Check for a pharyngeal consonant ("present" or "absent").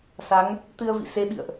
absent